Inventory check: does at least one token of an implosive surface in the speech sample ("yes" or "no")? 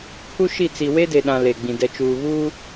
yes